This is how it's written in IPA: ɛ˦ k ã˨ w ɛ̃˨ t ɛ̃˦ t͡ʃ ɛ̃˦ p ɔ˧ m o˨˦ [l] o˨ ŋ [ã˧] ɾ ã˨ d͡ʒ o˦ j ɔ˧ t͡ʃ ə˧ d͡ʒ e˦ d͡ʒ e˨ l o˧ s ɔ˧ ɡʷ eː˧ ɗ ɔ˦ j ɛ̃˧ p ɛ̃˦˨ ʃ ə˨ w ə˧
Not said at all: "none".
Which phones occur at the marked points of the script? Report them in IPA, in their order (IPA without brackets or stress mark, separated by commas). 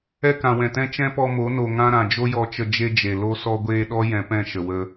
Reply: n, ã˦